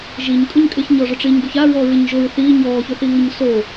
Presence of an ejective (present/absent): present